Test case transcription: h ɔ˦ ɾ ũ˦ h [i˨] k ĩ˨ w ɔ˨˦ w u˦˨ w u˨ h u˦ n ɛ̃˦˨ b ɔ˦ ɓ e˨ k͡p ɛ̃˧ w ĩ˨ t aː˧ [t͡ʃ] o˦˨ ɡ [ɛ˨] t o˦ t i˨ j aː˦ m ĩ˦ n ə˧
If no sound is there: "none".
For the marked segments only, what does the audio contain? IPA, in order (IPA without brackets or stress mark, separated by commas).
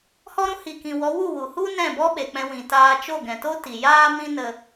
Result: i˨, t͡ʃ, ɛ̃˨